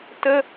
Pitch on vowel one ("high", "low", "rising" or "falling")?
high